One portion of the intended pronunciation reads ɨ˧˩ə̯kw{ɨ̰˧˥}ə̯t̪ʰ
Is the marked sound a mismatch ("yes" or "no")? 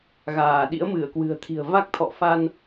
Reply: yes